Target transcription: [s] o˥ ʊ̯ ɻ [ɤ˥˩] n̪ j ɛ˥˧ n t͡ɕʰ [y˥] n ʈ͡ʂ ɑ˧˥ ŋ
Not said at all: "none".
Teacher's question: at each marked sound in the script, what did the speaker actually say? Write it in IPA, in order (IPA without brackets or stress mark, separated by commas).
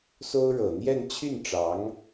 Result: s, ɤ˨˩, y˥˩